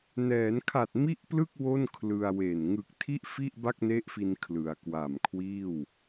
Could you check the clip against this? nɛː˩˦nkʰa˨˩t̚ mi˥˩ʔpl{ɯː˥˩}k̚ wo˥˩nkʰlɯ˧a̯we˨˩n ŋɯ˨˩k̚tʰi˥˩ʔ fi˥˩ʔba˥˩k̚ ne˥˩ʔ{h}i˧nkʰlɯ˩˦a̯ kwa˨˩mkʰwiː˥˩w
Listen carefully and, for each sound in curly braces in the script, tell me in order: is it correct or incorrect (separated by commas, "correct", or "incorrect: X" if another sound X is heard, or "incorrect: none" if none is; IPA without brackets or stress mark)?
incorrect: ɯ˥˩, incorrect: f